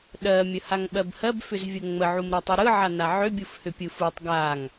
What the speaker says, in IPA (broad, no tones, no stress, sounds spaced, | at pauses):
ɗ ɜ mʲ ə h a ŋ ɓ ɜ b h ɜ b f ʏ z vʲ ə ŋ͡m ə ʕ u m ɾ ɜ tˤ ɯ ɾ ɯ ʕ a n a ʕ ʏ bʲ u f h ʏ pʲ ɯ f u tˤ ɡ a ŋ